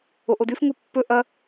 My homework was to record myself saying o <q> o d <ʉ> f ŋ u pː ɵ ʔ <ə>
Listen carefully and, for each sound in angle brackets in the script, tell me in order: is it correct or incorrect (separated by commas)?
incorrect, correct, incorrect